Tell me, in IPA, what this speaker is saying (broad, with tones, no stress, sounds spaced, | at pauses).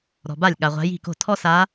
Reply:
ɾ ɔ̤˨ b a˥˩ lʲ ɠ a˨ ʁʷ a̤˧˥ j i̤˥˩ k o̤˥˩ tʰ ɔ˥ s a˧˥